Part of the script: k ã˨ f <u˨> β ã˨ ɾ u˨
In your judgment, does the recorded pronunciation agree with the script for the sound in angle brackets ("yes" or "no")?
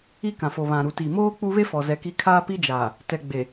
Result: no